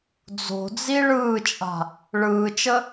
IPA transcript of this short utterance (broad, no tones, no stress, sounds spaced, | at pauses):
d͡z o̤ d͡z i ɭ ɯː t͡ʃʼ a̤ | ɭ ɯː t͡ʃ ə